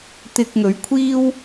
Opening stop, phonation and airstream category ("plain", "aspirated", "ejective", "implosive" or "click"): plain